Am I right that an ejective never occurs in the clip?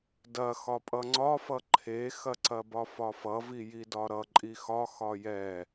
no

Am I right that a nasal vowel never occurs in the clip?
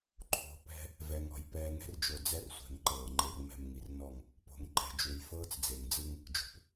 yes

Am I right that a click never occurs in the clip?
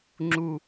no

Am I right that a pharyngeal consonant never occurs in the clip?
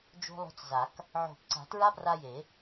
no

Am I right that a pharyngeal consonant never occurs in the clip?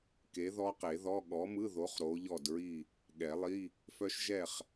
yes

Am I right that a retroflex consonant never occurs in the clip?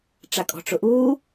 no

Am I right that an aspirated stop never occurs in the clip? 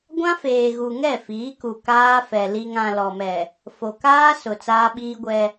yes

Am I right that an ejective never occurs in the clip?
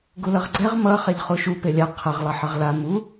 yes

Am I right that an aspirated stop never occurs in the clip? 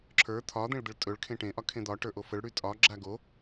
no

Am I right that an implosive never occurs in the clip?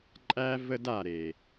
yes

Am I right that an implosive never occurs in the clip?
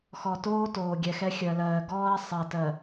yes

